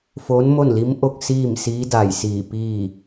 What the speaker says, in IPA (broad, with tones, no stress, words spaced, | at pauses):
foː˧˥nmo˥˨nli˧˥mʔo˥˨k̚ siː˥˨msiː˧˥da˧˩j siː˧˩piː˥˨